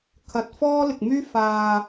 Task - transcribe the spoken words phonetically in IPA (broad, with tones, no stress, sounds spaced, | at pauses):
kʰ ɐ˨ t̚ f ɔː˥ l ɪ˨ k̚ m yː˥ f aː˨